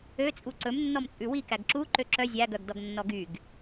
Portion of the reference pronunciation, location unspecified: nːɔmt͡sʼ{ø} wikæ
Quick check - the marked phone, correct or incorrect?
incorrect